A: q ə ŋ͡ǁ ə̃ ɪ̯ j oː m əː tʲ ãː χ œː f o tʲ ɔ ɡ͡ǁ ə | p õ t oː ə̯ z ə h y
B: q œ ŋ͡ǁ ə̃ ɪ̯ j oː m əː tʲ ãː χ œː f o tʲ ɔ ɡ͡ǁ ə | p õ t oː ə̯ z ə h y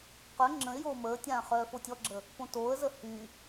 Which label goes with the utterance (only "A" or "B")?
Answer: B